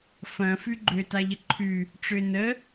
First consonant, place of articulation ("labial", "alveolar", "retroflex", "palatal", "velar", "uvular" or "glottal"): labial